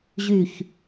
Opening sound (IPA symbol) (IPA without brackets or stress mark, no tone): ʑ